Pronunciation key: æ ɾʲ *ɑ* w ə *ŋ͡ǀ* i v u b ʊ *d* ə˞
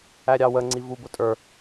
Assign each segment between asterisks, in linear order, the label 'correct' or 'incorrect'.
correct, correct, incorrect

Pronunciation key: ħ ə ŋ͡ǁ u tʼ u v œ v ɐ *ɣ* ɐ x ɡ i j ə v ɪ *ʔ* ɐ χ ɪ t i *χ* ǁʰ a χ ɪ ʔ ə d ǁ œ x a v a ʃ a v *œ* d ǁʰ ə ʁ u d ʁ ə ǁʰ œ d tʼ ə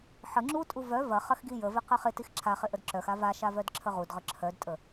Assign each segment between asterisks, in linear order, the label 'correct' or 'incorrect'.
incorrect, incorrect, incorrect, correct

